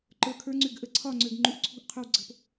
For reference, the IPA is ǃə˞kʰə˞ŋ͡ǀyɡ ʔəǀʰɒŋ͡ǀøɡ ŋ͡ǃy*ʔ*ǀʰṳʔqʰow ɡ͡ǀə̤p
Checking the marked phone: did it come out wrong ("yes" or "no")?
no